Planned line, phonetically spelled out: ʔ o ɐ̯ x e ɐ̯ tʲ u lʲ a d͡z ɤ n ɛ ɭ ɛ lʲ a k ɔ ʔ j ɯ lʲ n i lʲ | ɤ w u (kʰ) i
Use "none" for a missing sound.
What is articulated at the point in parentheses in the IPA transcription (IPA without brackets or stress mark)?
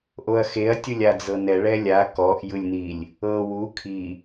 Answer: kʰ